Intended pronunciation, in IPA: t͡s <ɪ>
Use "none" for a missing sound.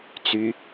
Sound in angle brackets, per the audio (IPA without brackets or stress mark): y